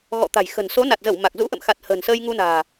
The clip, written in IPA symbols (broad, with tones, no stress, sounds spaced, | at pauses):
ɣ ɔ̰˧˨ t̪ a̤˨˩ j x ə̤˨˩ n s o˨˦ n a˨˩ t̚ z ə˧˩ w m a˨˩ k̚ z ṵ˧˥ ʔ ə̰˧˨ m x a˨˩ t̚ h ə̤ː˨˩ n s əː˧ j ŋ u˧ n a̤ː˨˩